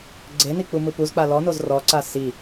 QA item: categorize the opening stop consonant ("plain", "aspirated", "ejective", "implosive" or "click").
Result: click